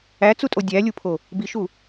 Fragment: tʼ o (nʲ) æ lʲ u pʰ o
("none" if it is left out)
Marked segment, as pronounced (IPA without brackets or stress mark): dʲ